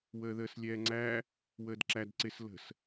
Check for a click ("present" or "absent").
present